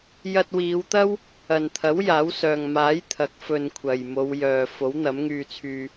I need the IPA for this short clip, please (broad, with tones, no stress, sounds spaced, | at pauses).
j ɐ˧ t̚ w iː˨˧ w t̪ ɐ˥ w | ɐ˨ n t̪ʰ ɐ˨˥ w j aː˨˥ w s œː˨ ŋ m aː˨˥ j t̪ʰ ɐ˨˥ k̚ f ɵ˧ n kʷʰ ɐ˨ j m o˨˧ w j œː˨ f o˨˥ w n̪ ɐ˨˥ m ŋ yː˧ t͡sʰ yː˧